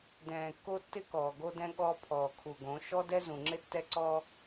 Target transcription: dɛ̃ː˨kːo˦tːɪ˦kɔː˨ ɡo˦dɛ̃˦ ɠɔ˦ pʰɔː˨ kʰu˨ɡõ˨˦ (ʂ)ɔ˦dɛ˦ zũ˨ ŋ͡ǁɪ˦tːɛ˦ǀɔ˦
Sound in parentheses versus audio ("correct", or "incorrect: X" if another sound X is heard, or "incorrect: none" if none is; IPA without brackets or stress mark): incorrect: ʃ